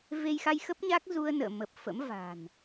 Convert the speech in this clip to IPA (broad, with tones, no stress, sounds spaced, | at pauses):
v e˧ j x a˧ j x ə˦˥ p̚ ɲ a˦˥ k̚ z u˧ ə̯ n ə̰ː˧˨ m ə˨˩ p̚ f ə̰˧˥ m v a̤˨˩ n